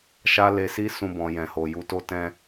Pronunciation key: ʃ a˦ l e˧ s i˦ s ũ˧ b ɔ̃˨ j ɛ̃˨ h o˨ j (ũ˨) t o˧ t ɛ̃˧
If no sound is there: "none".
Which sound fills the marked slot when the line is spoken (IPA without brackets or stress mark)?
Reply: u˨